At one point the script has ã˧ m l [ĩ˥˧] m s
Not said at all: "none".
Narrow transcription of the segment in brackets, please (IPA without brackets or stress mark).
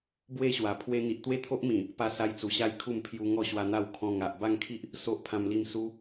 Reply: i˥˧